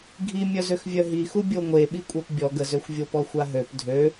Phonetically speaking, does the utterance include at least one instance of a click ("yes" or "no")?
no